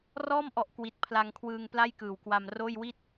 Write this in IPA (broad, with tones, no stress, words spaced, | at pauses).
rɔː˥˩mʔɔ˨˩ʔ kwi˨˩t̚pʰla˧ŋkʰwɯː˧ŋpla˥˩j kɯː˨˩wkwa˧mroː˥˩j wi˥˩t̚